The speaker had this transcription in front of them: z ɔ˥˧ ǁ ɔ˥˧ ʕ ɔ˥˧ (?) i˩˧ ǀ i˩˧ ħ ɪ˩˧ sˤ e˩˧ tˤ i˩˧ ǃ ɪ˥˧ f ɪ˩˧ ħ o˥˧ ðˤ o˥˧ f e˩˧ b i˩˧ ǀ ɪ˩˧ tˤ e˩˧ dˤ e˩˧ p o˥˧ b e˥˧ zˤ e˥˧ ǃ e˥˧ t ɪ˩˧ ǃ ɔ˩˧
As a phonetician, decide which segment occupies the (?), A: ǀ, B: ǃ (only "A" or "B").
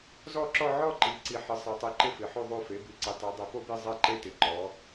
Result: B